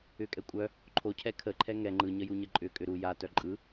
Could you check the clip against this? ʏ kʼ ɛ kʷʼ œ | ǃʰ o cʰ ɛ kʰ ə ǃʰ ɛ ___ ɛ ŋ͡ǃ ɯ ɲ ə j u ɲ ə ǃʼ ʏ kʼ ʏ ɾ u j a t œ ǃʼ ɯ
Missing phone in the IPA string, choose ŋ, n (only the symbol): ŋ